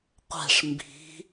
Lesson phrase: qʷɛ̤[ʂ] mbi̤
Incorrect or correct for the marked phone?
correct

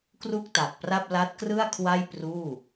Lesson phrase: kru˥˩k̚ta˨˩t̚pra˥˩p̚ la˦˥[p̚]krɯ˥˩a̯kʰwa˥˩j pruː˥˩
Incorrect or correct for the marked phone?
incorrect: t̚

